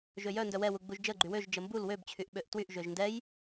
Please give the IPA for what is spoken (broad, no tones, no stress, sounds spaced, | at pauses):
ʒ ø j œ n d œ w ɛ w u ɡ͡b u ʒ d͡ʒ ə ɡ͡ǃ y w ø ʒ d͡ʒ ə m b u l w ø b t͡ɕʰ y ʔ ɓ ø ʔ t w y ʔ ʒ ø ʒ n d ɛ j